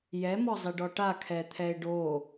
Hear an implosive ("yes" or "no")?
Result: no